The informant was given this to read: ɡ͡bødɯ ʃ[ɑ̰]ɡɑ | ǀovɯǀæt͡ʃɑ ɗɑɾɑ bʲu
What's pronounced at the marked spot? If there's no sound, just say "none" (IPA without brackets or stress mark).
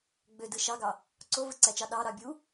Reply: ɑ